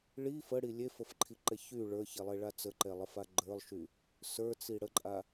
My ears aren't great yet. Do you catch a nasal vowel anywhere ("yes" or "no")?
no